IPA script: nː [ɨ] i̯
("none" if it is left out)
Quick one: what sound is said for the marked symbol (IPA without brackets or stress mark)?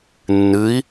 ɨ